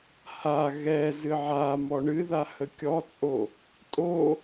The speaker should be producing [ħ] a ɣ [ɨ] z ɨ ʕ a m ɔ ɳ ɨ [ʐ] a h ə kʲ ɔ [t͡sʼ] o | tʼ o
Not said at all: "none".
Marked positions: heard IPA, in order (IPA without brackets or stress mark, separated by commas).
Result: h, ɛ, ð, t͡sʼ